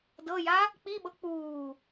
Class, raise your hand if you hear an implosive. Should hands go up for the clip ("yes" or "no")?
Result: yes